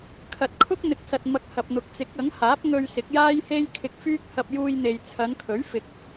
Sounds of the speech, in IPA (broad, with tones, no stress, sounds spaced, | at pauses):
kʰ ɐ˨ t̚ kʰ ʊ˥ k̚ n̪ ɪ˨ k̚ s ɐ˨ t̚ m ɐ˧ k̚ h ɐ˨ p̚ n̪ ʊ˨ k̚ t͡s ɪ˨˥ k̚ ɐ˨˥ ŋ h aː˨˥ p̚ ŋ ɵ˧ ɥ s ɪ˨˥ k̚ j aː˥ j h e˥ j kʰ ɪ˧ k̚ f yː˥ k̚ h ɐ˧ p̚ j uː˧ j n̪ e˨ j t͡sʰ ɐ˨˧ n kʰ ɵ˨˥ ɥ f ɪ˨ k̚